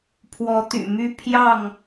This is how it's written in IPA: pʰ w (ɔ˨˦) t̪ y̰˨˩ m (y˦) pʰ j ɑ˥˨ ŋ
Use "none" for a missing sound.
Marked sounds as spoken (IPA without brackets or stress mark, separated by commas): ɔ˨˦, y˦